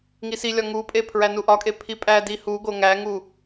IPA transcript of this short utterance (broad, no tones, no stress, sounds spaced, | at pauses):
ŋ i s i lʲ ɒ ŋ u pʼ e pʰ ɹ æ n u ʔ ɒ kʼ e pʰ i pʼ æ d i h u ɡ o ŋ æ ŋ u